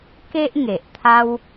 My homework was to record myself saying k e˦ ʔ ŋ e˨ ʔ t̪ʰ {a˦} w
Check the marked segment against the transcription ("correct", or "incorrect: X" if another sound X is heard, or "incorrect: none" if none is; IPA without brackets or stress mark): correct